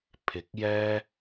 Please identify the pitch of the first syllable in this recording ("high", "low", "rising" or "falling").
rising